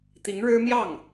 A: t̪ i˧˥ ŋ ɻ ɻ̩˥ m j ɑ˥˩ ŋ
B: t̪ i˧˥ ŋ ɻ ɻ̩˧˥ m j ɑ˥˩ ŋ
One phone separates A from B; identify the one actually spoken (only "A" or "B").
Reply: A